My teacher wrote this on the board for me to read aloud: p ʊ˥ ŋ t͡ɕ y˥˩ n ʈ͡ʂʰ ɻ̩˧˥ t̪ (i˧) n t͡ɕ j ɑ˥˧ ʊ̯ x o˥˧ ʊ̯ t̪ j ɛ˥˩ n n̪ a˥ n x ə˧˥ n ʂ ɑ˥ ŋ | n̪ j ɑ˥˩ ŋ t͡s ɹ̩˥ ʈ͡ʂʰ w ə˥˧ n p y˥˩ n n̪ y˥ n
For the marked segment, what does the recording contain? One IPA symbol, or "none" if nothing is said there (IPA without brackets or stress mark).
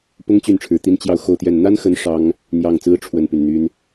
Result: i˥